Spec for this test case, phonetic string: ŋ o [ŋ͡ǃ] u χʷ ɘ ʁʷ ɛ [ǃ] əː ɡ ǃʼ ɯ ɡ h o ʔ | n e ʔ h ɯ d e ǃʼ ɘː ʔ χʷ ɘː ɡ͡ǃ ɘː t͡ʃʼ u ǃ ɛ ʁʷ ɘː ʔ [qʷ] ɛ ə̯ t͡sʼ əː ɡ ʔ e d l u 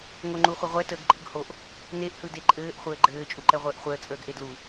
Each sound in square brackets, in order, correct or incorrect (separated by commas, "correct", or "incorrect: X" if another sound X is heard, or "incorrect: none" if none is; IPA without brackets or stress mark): correct, incorrect: t, incorrect: χʷ